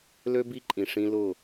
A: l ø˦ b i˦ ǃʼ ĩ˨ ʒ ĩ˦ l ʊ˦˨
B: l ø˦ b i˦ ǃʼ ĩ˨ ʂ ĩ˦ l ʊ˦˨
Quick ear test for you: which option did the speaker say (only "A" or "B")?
B